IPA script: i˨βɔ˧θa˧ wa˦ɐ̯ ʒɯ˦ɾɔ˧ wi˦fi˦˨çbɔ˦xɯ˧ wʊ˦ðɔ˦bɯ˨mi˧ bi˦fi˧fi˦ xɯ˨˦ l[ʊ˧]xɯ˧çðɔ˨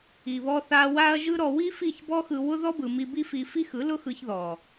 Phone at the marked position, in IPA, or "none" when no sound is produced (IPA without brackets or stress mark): ʊ˦